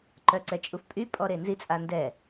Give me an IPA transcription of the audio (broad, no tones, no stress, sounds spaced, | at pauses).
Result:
ǃ œ ǀ ɛ t͡ʃʼ u f pʼ y pʼ ɔ ɾ e n z i t͡sʼ a n d ɛ